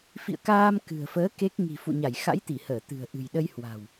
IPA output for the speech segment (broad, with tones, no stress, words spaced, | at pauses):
fḭ˧˨ə̯kaː˧m kɨ̤˨˩ə̯fəː˨˦ ke˦˥k̚ ŋi̤˨˩fṵ˧˨ɲa˧˩j xa̰˧˥jt̪i˧˩həː˧˩t̪ɨ̤˨˩ə̯ ʔɨ̤˨˩jɗə˧j hwa̤˨˩w